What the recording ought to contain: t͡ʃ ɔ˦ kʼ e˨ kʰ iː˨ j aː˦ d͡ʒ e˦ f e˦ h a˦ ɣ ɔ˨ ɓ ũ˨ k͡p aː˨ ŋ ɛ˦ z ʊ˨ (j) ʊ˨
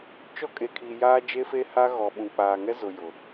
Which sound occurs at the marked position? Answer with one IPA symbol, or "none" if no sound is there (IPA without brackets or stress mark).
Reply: j